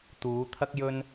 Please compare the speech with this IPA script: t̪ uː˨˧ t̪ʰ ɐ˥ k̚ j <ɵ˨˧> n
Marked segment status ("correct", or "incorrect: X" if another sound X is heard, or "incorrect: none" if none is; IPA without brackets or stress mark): incorrect: ɵ˥